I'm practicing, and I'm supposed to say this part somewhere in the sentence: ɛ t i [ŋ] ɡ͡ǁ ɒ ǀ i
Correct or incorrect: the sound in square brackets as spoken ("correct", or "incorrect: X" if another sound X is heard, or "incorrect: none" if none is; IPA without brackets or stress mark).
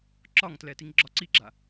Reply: correct